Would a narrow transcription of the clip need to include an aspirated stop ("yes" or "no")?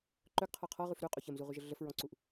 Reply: yes